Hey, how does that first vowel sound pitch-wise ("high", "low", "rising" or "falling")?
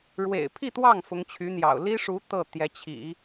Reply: low